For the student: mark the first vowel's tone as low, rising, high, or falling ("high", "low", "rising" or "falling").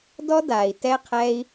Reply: high